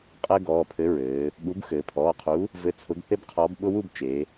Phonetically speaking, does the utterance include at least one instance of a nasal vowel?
no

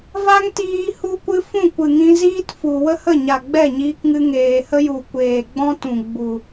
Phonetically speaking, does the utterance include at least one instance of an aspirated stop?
no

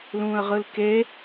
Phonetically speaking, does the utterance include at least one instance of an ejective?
no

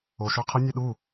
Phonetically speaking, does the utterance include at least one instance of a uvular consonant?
yes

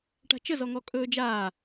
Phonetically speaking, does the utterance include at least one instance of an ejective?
yes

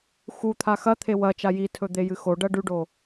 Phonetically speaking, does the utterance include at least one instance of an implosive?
no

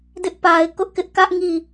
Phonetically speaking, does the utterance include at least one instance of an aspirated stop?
no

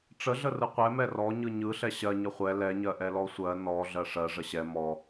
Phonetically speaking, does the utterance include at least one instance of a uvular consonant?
yes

